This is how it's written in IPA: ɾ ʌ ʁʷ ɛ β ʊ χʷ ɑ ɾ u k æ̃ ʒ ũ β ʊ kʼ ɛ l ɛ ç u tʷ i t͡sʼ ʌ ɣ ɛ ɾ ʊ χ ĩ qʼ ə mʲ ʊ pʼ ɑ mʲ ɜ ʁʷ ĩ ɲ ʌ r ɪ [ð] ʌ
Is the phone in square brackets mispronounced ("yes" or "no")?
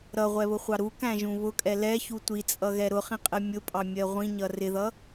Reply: no